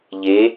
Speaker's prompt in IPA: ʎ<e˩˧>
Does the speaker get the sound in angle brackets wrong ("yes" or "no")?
no